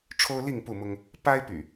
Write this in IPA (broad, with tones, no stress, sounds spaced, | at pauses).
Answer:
ʈ͡ʂʰ o˦ ʊ̯ l i˥˨ ŋ p u˥˨ m ʊ˦ ŋ | p a˦ ɪ̯ p y̰˨˩